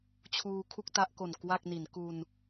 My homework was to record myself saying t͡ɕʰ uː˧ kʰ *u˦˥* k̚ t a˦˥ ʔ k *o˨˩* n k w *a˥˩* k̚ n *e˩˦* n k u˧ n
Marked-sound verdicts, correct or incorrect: incorrect: u˥˩, correct, correct, incorrect: i˩˦

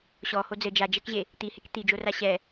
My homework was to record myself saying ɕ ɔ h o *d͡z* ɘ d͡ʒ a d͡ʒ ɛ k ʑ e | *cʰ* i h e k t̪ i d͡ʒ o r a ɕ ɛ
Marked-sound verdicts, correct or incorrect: correct, incorrect: t̪

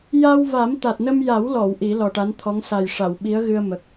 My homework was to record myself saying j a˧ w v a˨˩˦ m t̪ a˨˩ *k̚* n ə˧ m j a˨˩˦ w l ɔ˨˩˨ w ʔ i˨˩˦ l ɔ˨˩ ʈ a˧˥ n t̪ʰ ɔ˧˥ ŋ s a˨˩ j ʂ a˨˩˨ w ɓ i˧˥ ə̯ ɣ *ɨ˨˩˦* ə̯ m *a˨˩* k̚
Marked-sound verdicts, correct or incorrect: incorrect: t̚, incorrect: ɨ˧, incorrect: ə˨˩

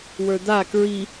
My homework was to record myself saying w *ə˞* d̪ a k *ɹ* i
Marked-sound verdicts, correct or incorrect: correct, correct

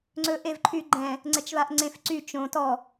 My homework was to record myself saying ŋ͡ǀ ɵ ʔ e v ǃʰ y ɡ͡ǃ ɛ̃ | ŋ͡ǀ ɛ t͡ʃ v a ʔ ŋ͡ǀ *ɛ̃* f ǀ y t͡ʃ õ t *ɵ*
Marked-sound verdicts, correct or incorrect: incorrect: ẽ, incorrect: ɔ

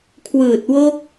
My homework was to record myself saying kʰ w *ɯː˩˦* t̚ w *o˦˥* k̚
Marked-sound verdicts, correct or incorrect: incorrect: ɯː˨˩, correct

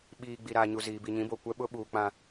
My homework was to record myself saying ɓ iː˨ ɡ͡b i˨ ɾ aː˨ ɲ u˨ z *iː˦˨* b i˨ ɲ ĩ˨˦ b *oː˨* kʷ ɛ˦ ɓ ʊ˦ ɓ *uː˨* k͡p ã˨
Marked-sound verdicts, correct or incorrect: incorrect: iː˨, incorrect: o˨, correct

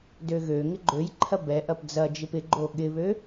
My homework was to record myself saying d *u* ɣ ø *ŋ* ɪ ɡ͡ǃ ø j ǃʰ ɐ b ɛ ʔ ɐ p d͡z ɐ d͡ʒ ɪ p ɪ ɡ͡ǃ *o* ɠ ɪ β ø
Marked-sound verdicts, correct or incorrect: incorrect: ø, correct, correct

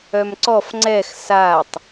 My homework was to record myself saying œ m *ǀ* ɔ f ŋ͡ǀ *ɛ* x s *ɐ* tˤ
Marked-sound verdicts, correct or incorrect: correct, correct, incorrect: a

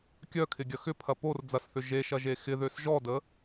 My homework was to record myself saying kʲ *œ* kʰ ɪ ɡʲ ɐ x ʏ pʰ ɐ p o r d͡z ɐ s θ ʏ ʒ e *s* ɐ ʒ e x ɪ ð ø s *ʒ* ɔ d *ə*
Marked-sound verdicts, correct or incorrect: correct, incorrect: ʃ, correct, correct

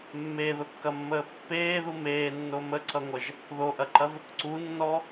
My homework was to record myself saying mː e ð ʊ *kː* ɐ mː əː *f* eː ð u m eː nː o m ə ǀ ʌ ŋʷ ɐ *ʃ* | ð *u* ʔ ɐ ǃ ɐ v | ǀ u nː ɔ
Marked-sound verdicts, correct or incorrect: correct, incorrect: pː, incorrect: ʒ, incorrect: o

